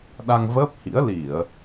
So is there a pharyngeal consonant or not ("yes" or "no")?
no